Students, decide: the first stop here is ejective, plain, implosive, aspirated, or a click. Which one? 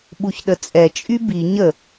implosive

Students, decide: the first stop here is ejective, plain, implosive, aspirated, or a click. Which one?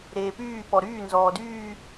plain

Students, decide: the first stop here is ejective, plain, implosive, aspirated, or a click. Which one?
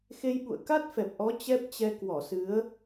implosive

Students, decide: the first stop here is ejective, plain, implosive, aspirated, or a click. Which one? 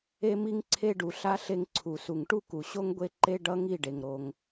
click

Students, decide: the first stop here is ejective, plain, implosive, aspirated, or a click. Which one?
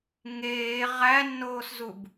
plain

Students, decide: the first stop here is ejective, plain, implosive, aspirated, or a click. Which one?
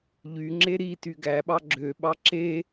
click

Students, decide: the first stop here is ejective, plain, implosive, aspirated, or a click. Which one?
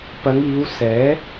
plain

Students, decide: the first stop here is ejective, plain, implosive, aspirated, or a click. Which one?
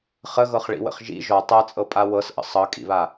plain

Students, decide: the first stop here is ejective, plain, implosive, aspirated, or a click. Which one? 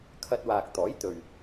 aspirated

